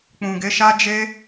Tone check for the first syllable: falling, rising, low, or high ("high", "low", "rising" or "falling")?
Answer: low